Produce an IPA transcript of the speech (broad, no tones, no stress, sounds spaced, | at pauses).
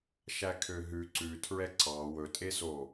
ʃ æ kʰ ø ɦ ʉ ǀ ʉ tʰ ɹ ɛ ǀ ɑ w ɵ tʼ e s o